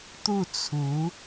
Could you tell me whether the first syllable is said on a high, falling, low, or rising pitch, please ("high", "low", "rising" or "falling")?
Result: falling